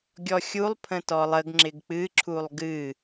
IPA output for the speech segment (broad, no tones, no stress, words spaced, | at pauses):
ɡʲɔxʲulˠ pʰə̃tɔlˠəɡ ŋ͡ǁɪɡk͡pɨ ǁʰulˠɡɨ